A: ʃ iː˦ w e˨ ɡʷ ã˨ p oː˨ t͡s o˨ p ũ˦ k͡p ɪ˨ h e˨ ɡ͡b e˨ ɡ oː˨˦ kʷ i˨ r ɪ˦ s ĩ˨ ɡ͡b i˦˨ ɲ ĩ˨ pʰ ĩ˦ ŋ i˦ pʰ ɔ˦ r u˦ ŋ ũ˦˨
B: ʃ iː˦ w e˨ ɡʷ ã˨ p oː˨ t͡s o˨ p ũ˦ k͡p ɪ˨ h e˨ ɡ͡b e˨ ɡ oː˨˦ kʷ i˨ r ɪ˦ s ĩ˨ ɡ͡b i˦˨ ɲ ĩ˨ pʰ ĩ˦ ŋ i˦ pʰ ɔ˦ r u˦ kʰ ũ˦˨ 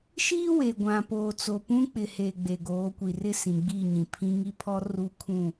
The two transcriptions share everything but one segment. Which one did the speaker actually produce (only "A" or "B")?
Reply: B